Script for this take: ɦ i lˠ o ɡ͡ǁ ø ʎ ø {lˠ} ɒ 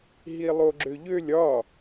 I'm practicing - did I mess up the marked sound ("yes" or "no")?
yes